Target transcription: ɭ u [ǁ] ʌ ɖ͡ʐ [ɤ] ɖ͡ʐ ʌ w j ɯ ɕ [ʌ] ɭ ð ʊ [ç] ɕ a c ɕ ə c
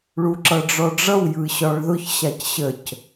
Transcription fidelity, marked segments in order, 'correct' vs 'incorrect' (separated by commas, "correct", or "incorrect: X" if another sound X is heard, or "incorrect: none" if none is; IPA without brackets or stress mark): correct, incorrect: ɔ, incorrect: ɒ, correct